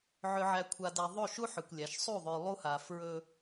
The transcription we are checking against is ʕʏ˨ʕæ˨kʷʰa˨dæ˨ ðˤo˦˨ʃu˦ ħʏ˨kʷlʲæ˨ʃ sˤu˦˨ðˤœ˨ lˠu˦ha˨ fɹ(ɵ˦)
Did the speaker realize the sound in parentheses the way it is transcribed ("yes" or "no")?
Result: yes